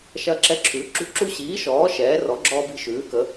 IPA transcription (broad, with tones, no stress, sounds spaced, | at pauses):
ʃ ɐ˦ ǁ ɛ˦ ǁʰ ʉ˨˥ ǁ ṳ˦ ǁ u˦ ɕ iː˨˥ ʃ ɔː˨˥ ʃ ɛː˨˥ r ɔ˨˥ ɡ͡ǁ ɔː˦ b i̤˦ ʃ ʉː˨˥ k ə˨˥